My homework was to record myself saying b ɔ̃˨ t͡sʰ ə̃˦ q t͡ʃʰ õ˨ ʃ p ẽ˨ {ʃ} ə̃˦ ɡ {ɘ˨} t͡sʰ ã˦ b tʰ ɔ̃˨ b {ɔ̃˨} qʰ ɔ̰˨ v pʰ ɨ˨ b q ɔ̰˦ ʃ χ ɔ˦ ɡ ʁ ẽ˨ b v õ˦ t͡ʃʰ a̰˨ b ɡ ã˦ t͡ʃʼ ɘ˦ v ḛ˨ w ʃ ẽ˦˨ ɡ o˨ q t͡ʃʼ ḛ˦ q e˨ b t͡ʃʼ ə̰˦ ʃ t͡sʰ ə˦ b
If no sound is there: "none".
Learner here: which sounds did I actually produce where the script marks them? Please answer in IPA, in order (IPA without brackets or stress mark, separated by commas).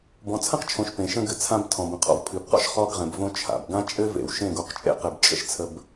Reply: ʃ, ɘ˨, ə̃˨